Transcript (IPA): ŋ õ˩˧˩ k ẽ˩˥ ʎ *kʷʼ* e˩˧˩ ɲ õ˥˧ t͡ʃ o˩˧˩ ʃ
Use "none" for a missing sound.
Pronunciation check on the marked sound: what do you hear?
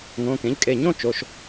kʼ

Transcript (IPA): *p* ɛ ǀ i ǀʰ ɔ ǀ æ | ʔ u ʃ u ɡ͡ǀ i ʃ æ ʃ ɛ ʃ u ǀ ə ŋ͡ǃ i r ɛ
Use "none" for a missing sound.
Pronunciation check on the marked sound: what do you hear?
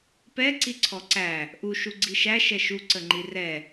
p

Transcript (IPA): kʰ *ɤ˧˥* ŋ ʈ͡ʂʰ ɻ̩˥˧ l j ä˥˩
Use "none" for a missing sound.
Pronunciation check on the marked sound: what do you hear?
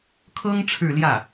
ɤ˥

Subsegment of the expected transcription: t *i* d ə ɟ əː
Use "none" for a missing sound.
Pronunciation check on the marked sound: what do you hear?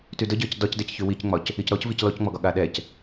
y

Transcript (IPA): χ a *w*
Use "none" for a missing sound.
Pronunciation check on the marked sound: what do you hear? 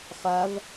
v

